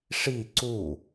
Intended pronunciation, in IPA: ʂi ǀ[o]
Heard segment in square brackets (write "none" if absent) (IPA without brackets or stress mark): u